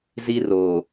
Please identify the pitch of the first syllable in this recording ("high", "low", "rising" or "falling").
high